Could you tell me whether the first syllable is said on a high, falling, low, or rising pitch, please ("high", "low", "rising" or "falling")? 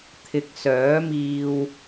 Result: low